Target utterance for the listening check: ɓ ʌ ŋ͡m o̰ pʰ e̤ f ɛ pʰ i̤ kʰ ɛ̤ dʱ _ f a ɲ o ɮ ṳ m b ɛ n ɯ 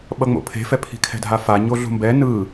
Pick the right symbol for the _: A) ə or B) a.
B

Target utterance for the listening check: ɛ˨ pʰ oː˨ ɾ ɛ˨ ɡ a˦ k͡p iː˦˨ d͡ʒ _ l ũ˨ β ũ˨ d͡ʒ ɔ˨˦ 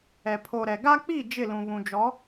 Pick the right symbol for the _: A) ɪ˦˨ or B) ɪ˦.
A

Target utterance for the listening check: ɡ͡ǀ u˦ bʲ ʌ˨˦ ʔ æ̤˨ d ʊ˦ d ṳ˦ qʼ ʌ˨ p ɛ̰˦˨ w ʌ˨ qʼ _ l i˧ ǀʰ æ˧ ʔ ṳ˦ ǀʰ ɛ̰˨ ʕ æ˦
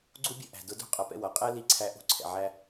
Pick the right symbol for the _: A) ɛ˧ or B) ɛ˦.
B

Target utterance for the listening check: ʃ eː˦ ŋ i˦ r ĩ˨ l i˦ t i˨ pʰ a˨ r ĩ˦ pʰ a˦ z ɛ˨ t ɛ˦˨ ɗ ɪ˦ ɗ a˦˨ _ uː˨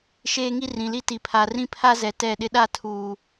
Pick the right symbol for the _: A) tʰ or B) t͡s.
A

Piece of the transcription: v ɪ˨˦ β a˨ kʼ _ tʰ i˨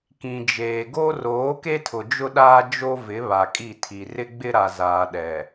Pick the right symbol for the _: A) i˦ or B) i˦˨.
B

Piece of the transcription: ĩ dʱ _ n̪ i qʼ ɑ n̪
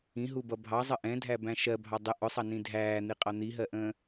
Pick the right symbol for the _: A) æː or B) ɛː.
A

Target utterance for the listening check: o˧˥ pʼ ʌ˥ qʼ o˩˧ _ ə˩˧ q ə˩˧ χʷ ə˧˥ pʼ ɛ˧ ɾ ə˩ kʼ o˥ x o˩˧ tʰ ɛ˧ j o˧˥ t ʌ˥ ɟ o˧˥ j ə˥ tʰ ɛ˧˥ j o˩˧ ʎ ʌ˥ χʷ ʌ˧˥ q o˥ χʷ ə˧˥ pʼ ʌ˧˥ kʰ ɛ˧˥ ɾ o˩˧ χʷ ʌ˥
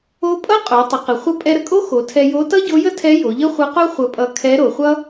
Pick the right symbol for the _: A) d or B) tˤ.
B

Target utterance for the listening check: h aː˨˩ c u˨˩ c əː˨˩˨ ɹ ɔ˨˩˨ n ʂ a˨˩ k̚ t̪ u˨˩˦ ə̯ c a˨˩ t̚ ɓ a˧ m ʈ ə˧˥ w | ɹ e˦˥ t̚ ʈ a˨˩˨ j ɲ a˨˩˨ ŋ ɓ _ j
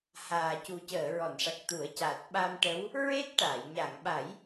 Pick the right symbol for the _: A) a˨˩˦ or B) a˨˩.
A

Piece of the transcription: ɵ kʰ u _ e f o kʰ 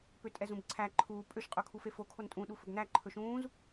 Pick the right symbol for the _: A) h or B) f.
B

